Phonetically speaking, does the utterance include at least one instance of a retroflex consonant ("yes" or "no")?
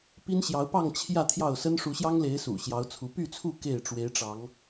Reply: yes